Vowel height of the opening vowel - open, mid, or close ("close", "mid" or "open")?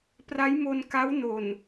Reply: open